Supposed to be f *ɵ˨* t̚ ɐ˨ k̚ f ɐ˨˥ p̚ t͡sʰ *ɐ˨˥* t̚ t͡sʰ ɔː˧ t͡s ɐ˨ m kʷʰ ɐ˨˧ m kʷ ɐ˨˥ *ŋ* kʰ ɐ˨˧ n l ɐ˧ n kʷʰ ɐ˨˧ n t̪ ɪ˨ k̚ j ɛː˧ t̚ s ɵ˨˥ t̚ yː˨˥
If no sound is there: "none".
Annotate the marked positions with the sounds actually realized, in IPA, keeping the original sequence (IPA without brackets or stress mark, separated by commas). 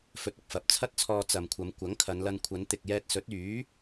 ɵ˨, ɐ˥, ŋ